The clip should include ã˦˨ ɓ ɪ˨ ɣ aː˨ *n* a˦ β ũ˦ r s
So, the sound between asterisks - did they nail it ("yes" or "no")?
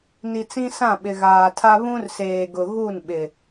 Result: no